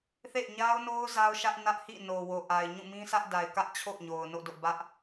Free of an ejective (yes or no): yes